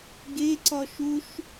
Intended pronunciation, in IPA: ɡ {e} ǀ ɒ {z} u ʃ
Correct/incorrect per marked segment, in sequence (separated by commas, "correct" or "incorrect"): correct, incorrect